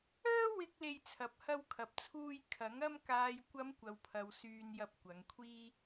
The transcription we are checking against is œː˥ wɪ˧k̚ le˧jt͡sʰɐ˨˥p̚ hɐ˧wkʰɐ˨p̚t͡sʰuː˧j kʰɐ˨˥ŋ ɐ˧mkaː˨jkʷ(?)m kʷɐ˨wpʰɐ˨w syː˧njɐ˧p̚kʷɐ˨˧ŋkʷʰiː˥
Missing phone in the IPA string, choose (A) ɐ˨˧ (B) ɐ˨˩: A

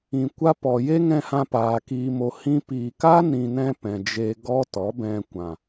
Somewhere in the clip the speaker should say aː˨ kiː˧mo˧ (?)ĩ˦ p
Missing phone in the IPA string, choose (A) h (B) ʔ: A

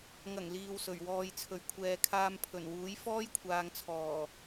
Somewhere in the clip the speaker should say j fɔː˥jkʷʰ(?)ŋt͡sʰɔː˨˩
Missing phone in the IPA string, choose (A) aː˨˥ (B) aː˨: B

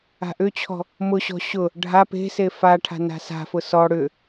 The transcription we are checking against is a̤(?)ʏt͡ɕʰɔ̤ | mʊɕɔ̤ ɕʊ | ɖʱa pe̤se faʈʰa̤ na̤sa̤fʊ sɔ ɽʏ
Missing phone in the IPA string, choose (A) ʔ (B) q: A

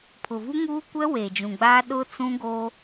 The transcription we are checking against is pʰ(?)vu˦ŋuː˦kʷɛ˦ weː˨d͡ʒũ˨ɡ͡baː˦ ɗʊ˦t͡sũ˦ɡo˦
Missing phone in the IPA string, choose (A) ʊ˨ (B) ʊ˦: A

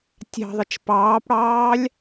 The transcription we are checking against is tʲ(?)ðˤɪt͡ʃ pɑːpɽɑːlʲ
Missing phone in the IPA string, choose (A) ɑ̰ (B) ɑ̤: B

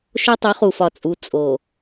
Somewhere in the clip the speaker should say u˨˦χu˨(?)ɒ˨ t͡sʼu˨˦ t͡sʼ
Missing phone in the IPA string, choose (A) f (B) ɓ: A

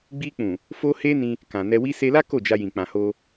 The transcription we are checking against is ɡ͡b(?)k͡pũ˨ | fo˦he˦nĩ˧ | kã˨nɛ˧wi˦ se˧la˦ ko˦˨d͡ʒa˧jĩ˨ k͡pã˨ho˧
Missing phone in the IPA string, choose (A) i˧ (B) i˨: A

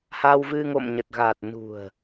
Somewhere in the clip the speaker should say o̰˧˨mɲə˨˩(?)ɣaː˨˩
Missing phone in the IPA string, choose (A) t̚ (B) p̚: A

